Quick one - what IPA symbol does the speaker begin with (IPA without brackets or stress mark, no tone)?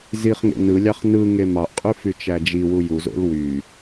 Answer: z